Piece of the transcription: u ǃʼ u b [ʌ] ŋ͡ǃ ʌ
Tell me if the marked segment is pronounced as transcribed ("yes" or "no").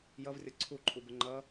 no